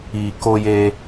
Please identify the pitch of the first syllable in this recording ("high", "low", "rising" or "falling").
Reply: low